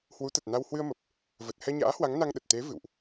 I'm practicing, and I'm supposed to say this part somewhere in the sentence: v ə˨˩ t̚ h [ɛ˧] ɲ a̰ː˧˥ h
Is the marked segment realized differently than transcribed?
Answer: no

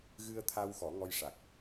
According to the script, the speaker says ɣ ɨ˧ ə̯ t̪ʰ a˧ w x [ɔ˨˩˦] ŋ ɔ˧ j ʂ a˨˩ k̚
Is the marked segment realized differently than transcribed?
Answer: no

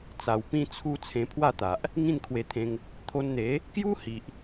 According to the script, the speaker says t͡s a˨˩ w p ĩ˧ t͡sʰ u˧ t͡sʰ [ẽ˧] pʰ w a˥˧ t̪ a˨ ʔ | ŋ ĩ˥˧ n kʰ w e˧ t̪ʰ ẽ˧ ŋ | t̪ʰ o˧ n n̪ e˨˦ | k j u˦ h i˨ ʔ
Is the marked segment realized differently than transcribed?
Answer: no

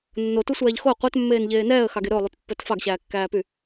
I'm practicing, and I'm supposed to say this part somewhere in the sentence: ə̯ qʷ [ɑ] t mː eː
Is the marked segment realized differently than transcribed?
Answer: no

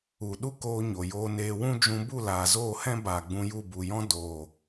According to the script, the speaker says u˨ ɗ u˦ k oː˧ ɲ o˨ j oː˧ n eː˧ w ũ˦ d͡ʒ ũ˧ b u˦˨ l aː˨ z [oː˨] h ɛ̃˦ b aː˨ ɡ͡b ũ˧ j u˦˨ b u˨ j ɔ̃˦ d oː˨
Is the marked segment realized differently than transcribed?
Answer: yes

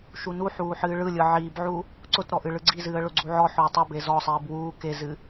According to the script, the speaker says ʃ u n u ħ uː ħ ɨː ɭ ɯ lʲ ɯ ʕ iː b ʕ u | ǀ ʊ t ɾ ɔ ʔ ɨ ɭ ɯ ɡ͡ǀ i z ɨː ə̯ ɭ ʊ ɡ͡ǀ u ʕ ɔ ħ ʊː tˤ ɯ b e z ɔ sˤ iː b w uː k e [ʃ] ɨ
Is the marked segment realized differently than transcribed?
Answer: yes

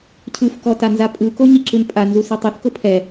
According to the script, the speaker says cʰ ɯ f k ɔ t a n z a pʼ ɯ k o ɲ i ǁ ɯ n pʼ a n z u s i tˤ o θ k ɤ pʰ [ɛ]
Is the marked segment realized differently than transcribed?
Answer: no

